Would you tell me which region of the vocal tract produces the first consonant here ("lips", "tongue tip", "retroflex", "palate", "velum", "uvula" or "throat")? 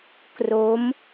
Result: velum